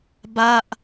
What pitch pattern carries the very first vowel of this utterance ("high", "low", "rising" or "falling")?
falling